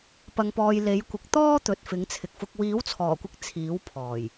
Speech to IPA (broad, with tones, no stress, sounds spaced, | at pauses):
p ɐ˨ ŋ p ɔː˨ j l e˨˥ j kʷ ɪ˨ k̚ t̪ ɔː˥ t̪ ɵ˨ t̚ f ɪ˨˥ ŋ t͡sʰ ɪ˨ k̚ f ʊ˧ k̚ w iː˨˥ w t͡sʰ ɔː˨˩ kʷ ɪ˨˥ k̚ t͡sʰ iː˨˥ w pʰ ɔː˨˩ j